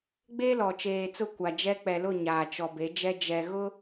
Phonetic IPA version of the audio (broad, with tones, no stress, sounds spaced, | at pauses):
ɡ͡b e˦ l ɔ˨ t͡ʃ eː˨ t͡s ʊ˦˨ kʷ a˨ d͡ʒ ɛ˦ k͡p ɛ˨ l ʊ˦˨ ɲ aː˨ t͡ʃ ɔ˨ b e˨˦ d͡ʒ ɛ˦ d͡ʒ ɛ˨ ɣ ʊ˦